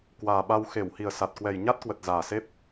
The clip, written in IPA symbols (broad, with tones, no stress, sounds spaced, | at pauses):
k w aː˨˩ ɓ a˧ w x e˧˩ w h i˨˩ ə̯ s a˨˩ t̚ k w ɛ˨˩ j ɲ a˦˥ t̚ k w ə˨˩ t̚ z aː˨˩ s e˦˥ p̚